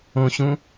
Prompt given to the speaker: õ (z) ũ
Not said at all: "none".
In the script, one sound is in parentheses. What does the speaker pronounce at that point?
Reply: ɕ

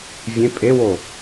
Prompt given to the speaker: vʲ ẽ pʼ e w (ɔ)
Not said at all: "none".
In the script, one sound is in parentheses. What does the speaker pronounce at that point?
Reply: o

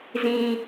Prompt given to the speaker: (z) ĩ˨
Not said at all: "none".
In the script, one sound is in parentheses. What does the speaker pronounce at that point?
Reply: z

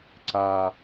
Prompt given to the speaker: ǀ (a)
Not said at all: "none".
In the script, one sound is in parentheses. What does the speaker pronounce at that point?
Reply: a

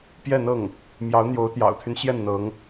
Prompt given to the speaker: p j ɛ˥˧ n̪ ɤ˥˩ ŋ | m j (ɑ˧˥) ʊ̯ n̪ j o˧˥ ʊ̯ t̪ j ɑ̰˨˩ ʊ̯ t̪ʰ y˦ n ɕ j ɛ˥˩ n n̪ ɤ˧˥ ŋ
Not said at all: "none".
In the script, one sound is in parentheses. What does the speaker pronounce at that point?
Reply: ɑ˧˥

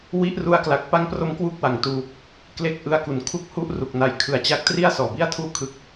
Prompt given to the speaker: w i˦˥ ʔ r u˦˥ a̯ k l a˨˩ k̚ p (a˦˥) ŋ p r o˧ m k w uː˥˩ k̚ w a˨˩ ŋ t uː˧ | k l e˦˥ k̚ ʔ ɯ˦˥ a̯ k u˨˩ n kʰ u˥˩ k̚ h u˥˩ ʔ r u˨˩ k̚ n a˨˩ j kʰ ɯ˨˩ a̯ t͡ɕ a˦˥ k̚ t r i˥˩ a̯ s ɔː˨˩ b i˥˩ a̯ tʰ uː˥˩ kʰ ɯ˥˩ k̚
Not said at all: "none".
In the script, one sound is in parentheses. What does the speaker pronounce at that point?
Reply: a˦˥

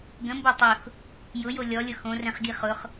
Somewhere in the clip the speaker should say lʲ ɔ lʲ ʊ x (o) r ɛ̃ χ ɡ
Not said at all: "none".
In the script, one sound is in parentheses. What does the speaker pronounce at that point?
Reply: õ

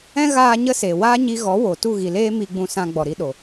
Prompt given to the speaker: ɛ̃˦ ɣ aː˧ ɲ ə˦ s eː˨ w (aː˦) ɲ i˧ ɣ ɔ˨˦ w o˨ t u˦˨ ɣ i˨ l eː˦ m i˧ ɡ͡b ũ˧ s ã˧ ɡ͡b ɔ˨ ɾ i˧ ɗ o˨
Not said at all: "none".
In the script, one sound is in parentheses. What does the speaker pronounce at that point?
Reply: aː˦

